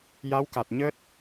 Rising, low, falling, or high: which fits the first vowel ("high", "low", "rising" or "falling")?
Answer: rising